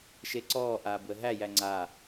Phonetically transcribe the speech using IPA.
ʃ e ǀ ɔː ʔ aː b w ə ɦ æ j æ ŋ͡ǀ a

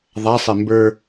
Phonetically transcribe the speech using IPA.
ðˤ a sˤ e m b ə˞

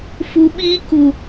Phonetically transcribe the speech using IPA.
f u˧ ɓ iː˦ k u˨

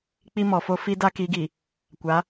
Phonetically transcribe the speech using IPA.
k͡p i˦ m ɔ˨ f o˦ f i˦ d a˦ k i˨˦ ɡ i˨ | kʷ a˨˦

